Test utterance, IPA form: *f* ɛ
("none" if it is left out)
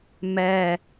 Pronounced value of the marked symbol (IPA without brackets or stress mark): m